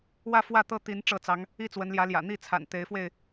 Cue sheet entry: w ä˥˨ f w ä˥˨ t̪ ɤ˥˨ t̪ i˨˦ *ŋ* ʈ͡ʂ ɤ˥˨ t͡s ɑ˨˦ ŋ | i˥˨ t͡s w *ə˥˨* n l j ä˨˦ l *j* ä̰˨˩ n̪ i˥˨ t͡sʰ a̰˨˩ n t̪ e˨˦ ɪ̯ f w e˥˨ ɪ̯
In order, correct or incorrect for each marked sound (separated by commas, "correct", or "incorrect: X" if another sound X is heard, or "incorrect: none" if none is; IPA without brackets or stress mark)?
incorrect: n, incorrect: ə˨˦, correct